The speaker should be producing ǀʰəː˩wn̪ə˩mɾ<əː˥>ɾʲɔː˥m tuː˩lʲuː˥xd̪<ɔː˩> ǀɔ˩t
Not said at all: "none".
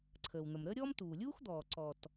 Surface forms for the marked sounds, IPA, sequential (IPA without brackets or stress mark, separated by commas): əː˥, ɔː˩